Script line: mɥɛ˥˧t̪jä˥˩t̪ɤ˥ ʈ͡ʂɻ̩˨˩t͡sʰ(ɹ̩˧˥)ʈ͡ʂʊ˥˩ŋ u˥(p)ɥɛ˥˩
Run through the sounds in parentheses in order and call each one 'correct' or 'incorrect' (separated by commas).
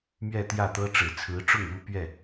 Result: correct, correct